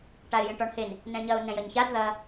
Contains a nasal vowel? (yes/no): yes